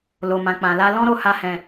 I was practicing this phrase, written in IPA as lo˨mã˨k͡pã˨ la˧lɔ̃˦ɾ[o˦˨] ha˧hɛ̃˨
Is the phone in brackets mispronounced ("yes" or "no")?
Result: no